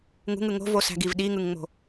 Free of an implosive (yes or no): no